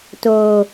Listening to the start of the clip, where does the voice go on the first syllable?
low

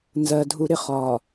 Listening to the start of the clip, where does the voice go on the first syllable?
low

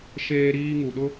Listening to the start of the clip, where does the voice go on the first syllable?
high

